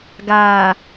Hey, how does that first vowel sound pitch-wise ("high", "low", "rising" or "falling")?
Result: low